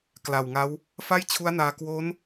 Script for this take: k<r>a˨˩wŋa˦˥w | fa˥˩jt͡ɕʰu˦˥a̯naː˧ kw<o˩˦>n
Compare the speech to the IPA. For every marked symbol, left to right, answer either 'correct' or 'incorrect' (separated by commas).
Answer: incorrect, incorrect